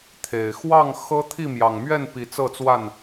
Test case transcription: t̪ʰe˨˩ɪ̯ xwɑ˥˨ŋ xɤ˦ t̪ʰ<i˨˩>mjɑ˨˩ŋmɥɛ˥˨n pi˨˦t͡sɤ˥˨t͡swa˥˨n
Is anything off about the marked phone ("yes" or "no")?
yes